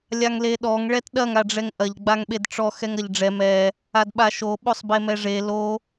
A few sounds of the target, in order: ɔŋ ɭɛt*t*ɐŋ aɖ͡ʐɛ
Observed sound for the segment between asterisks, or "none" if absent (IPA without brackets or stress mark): ɗ